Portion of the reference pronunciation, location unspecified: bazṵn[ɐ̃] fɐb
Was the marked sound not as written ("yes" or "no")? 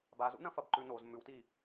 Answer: no